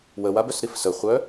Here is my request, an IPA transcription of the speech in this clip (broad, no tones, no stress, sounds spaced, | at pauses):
w ə w a b œ s ɾ i f s ə χʷ œ